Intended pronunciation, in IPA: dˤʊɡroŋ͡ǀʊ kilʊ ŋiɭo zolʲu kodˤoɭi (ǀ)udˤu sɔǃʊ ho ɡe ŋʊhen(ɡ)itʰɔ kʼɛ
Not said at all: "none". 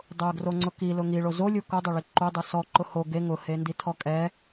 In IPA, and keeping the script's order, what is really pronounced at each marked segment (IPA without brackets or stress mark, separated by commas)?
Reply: ǃ, d